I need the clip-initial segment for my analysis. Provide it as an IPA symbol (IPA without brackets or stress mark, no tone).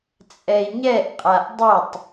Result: t͡sʼ